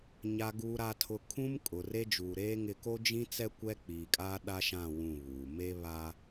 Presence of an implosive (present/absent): present